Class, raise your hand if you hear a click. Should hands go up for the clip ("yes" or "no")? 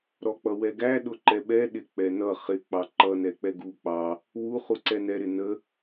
yes